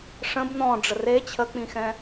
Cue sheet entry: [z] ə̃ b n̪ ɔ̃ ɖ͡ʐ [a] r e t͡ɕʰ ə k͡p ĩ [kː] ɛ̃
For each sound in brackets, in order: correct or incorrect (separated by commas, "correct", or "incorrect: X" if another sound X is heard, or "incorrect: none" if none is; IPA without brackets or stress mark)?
incorrect: ʂ, incorrect: ə, incorrect: x